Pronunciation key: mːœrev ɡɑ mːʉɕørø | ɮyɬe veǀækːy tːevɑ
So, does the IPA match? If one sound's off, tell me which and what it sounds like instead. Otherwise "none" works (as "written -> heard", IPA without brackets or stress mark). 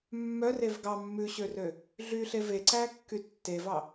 none